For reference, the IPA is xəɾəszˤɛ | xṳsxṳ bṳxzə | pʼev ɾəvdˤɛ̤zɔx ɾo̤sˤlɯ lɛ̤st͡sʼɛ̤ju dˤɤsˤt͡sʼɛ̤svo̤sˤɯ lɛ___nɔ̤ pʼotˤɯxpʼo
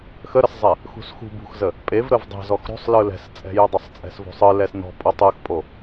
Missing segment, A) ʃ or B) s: B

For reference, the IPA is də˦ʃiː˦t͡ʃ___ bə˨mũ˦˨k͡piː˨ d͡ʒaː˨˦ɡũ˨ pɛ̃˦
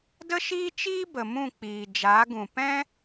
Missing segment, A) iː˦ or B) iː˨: A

